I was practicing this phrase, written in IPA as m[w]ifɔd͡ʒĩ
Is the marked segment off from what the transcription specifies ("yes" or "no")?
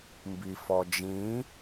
yes